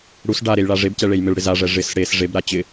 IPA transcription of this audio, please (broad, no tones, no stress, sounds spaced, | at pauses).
ɽ u s ɖ a ɾ e j ɭ a ʐ e b c ɛ ɭ e j m ɪ ɭ ɽ ɪ z a ʐ ɛ ʐ ɪ s ɽ e s ʐ e b ɾ a t͡ɕ ɪ